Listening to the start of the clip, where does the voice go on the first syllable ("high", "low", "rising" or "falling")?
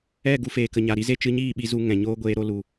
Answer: falling